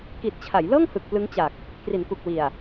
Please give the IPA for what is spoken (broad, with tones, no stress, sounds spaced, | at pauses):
k i˨˩ t̚ t͡ɕʰ a˩˦ j l ɤː˥˩ ŋ h ɯ˨˩ k̚ p l ɯ˦˥ ŋ t͡ɕ a˨˩ k̚ | k r i˩˦ n k u˨˩ k̚ w i˨˩ a̯